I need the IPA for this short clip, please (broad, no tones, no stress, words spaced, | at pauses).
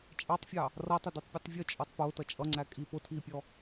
t͡ʃʼɑtˤfʲɑ | rʌtˤʊdutˤpʲutˤ vʲʊt͡ʃʼɔtˤ pʊːtʌ t͡ʃʼʌŋ͡ǀækʼiːp ʊtʰiːpʲɔ